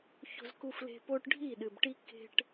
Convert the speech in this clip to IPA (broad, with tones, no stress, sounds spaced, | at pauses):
ç o̤˨ z k u˨ f l e̤˨ p o˦ ʈ ɖʱ i˦˨ ɗ ɨ˨ b ʈ i˦ k e̤˦ ʈ